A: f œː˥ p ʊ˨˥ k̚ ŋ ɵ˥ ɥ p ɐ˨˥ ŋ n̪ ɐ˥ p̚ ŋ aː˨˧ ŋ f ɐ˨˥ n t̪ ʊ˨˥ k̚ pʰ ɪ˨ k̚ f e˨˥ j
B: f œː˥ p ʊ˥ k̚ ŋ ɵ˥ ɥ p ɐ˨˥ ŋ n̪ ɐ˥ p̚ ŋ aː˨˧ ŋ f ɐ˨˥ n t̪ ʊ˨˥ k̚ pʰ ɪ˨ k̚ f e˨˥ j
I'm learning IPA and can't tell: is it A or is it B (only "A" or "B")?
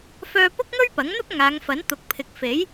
B